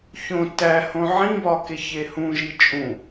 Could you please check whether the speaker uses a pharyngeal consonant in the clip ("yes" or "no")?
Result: yes